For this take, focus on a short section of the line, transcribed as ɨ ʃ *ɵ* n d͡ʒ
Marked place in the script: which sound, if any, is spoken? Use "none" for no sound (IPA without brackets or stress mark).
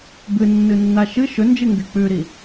ɵ